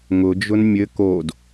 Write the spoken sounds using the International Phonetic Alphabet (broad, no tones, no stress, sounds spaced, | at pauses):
ŋ ʊ d͡ʒ ʊ n mʲ ɘ k o d